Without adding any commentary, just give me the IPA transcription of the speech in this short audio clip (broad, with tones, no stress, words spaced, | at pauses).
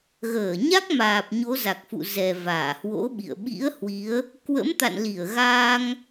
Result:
ɣəː˧˩ɲa˦˥k̚maː˨˩p̚ ɲo˨˦za˨˩k̚fṵ˧˨ zɛ˨˩ vaː˧˩hwo̰˧˥ɓḭ˧˨ə̯ ɓḭ˧˥ə̯ hwi˨˦ə̯ | kwə̰˧˥mt̪a̰˧˨nli˧˩ə̯ɣaː˧ŋ